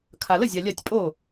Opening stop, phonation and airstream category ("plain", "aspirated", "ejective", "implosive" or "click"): aspirated